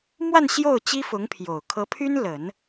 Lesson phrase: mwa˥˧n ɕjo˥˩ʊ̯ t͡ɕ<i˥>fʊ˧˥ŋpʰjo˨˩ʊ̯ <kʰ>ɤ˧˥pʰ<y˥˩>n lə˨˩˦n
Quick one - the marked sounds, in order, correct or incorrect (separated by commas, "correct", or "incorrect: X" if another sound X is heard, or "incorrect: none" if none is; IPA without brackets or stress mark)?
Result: correct, correct, incorrect: y˥